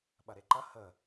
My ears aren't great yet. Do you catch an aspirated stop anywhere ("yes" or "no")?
no